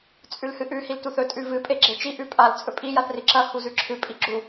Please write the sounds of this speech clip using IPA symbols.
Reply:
t͡sʼ ʉ l h ɨ ʔ ʉ h i l t u θ ɵ tʼ ʉ v ɨ pʼ e ɡ͡ǁ e t͡ʃ i ʔ ʉ pʼ a l t͡sʼ ɵ pʼ i j a θ r i ǁ ɐ h u z ʉ ǁʰ ɨ pʼ i ɡ͡ǁ u

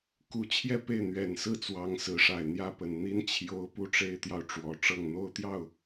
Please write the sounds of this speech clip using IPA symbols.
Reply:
k u˧˥ t͡ɕʰ j ɛ˥˧ p e˥˩ ɪ̯ n̪ ɥ ɛ˨˩ n s ɹ̩˥˩ t͡s w ɑ˧˥ ŋ s ɹ̩˧˥ ʂ a˨˩ ɪ̯ n̪ j ä˥˩ p ə˨˩ n n̪ i˥ n t͡ɕʰ j o˧˥ ʊ̯ p u˥˩ ʈ͡ʂ e˥ ɪ̯ t̪ j ɑ˨ ʊ̯ ʈ͡ʂ w ɔ˨˩ ʈ͡ʂ ɤ˥˩ ŋ n̪ o˥ ʊ̯ t̪ j ɑ˥˩ ʊ̯

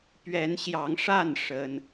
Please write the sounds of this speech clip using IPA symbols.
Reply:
p ɥ ɛ˨˦ n ɕ j ɑ˨˦ ŋ ʂ a˥˨ n ʂ ə˦ n

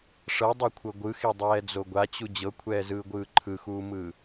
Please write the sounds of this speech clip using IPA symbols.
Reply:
ʂ ɤ dˤ i kʷʰ ɤ ɡʷ ɯ x i dˤ ɛː d͡z o ɡʷ a t͡ɕ u d͡ʑ ɤ kʷʰ ɛː z ɯː ɡʷ ɯː ǃʰ ɯ x uː m ɯː

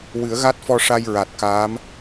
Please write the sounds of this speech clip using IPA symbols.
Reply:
w ɨ˨˩˦ ə̯ ɣ a˦˥ t̚ f ɔ˧ ʂ a˧ j ɹ a˨˩ t̚ k aː˧˥ m

